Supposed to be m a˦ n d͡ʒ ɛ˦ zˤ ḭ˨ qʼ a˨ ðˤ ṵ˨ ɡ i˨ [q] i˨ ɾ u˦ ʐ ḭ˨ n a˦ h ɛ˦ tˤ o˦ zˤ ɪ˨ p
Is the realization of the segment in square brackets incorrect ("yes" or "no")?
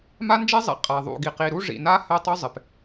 no